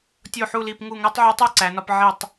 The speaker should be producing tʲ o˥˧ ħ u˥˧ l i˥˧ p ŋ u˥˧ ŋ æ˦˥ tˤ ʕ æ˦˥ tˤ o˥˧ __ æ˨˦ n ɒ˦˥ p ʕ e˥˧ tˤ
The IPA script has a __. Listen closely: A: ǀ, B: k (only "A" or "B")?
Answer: A